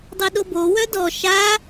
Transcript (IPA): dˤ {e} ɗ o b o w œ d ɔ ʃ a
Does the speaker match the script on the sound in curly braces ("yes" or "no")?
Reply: yes